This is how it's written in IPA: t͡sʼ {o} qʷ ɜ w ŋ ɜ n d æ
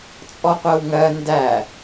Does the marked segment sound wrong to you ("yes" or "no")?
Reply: yes